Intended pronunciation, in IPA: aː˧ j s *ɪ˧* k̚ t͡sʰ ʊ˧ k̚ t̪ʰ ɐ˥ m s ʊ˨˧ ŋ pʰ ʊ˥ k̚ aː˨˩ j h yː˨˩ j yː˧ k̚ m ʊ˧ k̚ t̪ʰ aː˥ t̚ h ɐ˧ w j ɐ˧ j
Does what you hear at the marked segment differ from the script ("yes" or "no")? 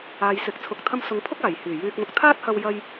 no